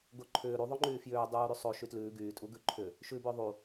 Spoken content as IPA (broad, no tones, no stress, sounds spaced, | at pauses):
ɡ o ǃʰ ʏː ɾ u ðˤ o ŋ͡ǃ yː f j ʏː dˤ uː ɾ y sˤ o ʃ y t l ʉː ɡ yː tʼ u ɡ ʉ ǃʰ ʏ | ʃ ʉ b ʏː ðˤ u